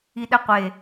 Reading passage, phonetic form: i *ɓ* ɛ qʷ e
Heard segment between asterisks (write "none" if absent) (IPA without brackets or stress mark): ɗ